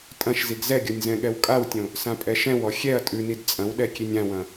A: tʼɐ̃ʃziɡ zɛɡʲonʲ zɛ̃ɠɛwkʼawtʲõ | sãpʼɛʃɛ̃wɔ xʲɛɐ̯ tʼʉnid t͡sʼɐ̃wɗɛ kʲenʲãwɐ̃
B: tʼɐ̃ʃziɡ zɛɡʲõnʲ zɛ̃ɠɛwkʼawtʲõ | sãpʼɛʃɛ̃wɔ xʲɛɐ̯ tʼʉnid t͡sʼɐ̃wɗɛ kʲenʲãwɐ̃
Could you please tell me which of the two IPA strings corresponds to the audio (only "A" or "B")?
A